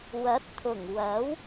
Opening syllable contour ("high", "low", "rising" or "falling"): rising